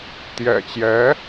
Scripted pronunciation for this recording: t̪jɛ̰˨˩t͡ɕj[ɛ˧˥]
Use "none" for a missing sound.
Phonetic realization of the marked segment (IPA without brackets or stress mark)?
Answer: ɛ˧˥